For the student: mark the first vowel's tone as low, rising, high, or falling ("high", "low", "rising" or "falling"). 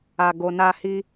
high